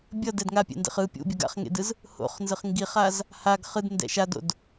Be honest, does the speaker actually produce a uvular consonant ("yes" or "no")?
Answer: yes